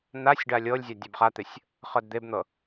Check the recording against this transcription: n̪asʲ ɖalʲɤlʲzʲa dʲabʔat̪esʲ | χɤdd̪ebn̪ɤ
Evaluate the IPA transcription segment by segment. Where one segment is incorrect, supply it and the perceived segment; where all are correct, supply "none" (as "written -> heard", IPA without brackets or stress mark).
ʔ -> χ